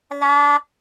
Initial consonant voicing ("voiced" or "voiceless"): voiced